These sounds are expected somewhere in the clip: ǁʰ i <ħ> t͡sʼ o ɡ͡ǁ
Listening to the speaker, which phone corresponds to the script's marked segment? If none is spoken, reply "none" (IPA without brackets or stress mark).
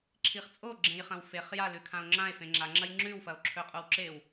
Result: χ